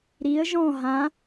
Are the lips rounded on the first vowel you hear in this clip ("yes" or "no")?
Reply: no